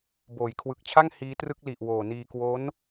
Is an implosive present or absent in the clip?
absent